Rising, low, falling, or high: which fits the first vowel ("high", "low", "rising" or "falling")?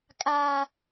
high